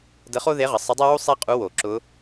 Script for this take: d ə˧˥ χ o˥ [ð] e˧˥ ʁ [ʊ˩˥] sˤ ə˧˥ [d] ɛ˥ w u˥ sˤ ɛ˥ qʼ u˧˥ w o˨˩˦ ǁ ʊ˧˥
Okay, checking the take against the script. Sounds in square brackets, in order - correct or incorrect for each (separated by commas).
correct, incorrect, incorrect